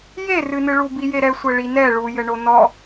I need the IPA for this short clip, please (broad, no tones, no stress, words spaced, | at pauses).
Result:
jerɨnɨɭu bijeɾɛsʷɛ ɭinɛ ɭujɘ ɳonɔ